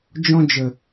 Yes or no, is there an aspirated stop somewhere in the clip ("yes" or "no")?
no